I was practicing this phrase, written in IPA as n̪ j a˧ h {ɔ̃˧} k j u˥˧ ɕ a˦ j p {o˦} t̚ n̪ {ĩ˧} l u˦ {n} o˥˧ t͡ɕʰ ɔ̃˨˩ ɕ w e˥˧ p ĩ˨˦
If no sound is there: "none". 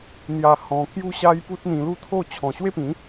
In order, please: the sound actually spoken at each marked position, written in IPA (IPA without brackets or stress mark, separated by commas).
ɔ̃˧, u˦, ĩ˧, t̪ʰ